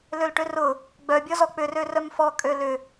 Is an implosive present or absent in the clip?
absent